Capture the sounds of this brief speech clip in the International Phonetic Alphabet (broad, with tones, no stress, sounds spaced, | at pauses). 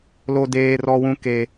l o˨ d eː˨ r ɔ˨ w ũ˨ k e˨